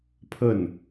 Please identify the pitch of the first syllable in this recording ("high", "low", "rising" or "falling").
falling